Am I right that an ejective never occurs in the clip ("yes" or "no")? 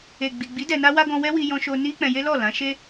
yes